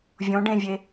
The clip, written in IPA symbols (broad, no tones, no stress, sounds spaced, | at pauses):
vʲ õ ɖ ẽ vʲ e